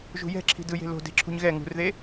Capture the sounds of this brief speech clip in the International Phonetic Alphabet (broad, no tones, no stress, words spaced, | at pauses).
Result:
ʒṳjɛ̤ ǁʰi̤dɯje̤ lo̤ de̤ǁʰṳɲɣɛ ŋṳrðe